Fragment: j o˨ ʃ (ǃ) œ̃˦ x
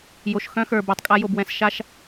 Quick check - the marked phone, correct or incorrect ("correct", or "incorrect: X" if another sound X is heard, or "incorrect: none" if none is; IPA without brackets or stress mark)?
incorrect: x